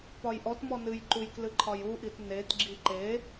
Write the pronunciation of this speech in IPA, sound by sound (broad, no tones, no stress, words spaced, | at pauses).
pɒjʔɔtmɔ nɨjǃuj klɨǃʰɒjuʔit netɡ͡ǁi ǃe